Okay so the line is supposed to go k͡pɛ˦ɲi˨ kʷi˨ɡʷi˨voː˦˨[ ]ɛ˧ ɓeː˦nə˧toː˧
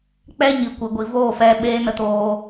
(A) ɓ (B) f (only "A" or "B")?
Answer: B